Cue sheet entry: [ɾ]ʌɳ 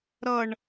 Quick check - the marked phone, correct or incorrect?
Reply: correct